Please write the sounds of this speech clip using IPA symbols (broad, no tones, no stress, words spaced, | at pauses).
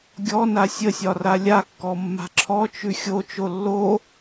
ɡʲɔna sʲəsʲɒ ralʲakːɔ mːa̤ǁʰɔt͡ʃʉ xʲot͡ʃo lːo